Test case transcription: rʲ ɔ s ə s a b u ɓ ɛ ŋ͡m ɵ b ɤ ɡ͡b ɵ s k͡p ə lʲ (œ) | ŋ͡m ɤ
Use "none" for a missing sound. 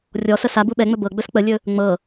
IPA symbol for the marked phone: ɵ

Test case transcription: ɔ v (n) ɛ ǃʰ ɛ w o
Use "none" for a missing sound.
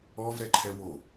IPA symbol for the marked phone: ɾ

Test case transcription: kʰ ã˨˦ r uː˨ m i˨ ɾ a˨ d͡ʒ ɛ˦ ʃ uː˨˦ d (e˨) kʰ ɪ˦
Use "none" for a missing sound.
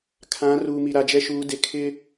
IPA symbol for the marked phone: e˨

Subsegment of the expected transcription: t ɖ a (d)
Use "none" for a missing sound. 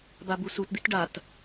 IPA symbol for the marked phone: t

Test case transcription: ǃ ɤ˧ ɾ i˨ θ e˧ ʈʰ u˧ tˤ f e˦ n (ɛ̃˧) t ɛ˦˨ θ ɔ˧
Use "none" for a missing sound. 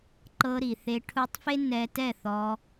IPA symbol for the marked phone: ɛ˧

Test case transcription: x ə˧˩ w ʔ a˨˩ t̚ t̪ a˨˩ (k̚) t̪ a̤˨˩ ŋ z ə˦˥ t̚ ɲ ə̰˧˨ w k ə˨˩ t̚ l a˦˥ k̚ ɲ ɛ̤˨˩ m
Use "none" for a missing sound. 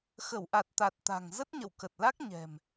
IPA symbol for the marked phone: t̚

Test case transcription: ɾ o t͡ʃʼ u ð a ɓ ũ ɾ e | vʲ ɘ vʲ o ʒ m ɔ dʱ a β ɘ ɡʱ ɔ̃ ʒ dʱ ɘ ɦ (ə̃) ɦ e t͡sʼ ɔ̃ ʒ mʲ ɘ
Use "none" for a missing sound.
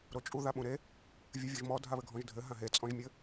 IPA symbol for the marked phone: ã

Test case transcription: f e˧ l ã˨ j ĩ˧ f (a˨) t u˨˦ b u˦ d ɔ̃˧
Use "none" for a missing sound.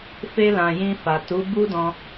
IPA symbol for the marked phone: a˨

